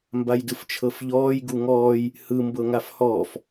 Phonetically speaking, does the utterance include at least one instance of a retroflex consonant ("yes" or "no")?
no